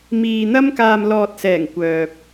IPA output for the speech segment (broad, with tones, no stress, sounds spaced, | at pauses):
m iː˨ n̪ ɐ˥ m k aː˨ m l ɔː˨ t̚ s ɛː˨˩ ŋ kʷ œː˨ p̚